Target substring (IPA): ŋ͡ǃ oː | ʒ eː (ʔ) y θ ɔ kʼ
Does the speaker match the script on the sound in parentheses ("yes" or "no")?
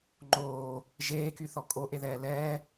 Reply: no